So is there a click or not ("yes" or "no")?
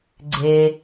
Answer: yes